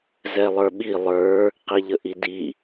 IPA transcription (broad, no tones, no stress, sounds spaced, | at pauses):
z ɛ lˠ ə˞ ɓ i lˠ ə˞ | q i ʎ ə ʔ i d i